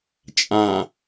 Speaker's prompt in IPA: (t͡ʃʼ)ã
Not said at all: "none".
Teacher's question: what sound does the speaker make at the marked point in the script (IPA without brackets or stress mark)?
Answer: t͡ʃʼ